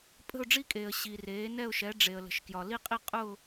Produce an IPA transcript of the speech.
pʼ ə̤˥˧ ʊ̯ ɖ͡ʐ i˥˧ kʼ eː˨ ə̯ ɕ i˨ r eː˨˦ n ɛ˥˧ ʊ̯ ʃ ɛ˨˦ ɖ͡ʐ e˨ ə̯ l ə̤˨ ʃ k j ɒ˨ l i˥˧ qʼ i˥˧ qʼ ʊː˥˧

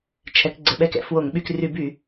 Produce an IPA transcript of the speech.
t͡ʃʰ ɛ˩˧ k ɡ͡ǀ ɘ˩˧ ɓ ɛ˧˩˧ k ɛ̰˧˩˧ f w o˧˩˧ ŋ ɓ y˧˩˧ k r y˧˩˧ b y˧˩˧

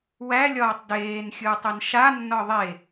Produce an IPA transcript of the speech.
w æ lʲ ɒː tˤ d eː n xʲ ɯː tˤ e n ʃ a nː ɒ ðˤ e

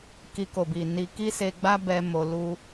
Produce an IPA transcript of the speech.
k i˧ k o˨ b i˨ n i˧ k i˦ s e˧ ɡ͡b a˦ b ɛ˧ m o˧ l u˦

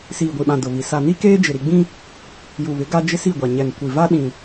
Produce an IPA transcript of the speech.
s iː˨ ɡʷ i˨ ɓ ã˨ d ʊ˨ β i˨ s a˨ n i˦ k eː˦ d͡ʒ ɪ˨ ɾ i˨ ɡ͡b ĩ˦ | j u˨ β ɪ˨˦ ɡ a˦ d͡ʒ ɪ˦ s i˦˨ ɡʷ a˨ ɲ ɛ˨ n kʷ i˨ v a˦ ɗ ĩ˨

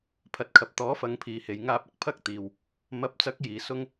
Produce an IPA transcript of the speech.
pʰ ɐ˨ t̚ kʰ ɐ˨ p̚ t̪ ɔː˨˥ f ɐ˨˧ ŋ pʰ iː˨ h e˨ j ŋ aː˧ p̚ ɐ˧ k̚ pʰ ɐ˥ k̚ t̪ iː˨ w | m ɐ˨˥ p̚ t͡s ɐ˨˥ k̚ j iː˨˧ s ʊ˥ ŋ

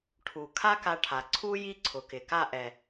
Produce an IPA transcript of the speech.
ʈʰ u˨ kʰ a˦ k a˧ ʈʰ a˨ ǀʰ u˦ j i˦ ǀʰ ʊ˨ k ɪ˨ k a˦˨ ʔ ɛ˨

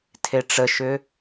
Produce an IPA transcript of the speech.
tʰ e ʈ͡ʂ ə ʃ ʏ

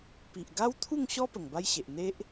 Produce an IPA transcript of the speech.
p i˨ ʔ ɡ a˦ w t̪ʰ u˥˧ ŋ ɕ ɔ˦ p ə˨˩ ŋ b a˦ j ɕ e˨ ʔ n̪ e˦ ʔ

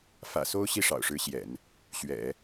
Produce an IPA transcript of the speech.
f ä̰˨˩ s o˥ ʊ̯ ɕ i˥˩ ʂ ɑ̰˨˩ ʊ̯ ʂ ɻ̩˧˥ ɕ j ɛ̰˨˩˦ n | ɕ ɥ ɛ̰˨˩˦

